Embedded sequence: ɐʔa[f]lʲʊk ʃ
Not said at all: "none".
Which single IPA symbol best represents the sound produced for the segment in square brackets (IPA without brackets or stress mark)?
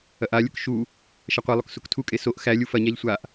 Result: none